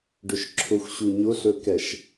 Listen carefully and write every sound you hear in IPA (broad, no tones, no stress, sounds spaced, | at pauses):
ɖ ʏ ʃ ǁʰ ʊ xʷ ɕ u ɲ ʊ ɬ ɵ k ɛ ʃ